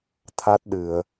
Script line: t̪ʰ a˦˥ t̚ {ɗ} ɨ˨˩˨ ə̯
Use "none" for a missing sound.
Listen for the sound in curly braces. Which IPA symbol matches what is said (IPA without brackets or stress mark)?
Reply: ɗ